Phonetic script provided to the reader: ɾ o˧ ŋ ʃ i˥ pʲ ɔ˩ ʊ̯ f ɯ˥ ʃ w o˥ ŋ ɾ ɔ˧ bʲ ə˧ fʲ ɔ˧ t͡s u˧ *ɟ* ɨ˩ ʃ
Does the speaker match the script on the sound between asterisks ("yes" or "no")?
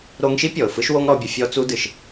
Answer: no